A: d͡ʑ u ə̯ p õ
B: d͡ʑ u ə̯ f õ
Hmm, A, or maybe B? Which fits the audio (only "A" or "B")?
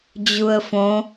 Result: B